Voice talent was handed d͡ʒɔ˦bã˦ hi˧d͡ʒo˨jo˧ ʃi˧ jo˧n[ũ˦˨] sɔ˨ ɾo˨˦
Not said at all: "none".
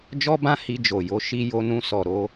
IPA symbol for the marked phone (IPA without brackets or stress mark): ũ˧